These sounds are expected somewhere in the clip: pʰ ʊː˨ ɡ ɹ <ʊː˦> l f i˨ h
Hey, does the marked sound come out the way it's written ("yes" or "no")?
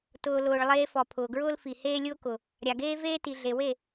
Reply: yes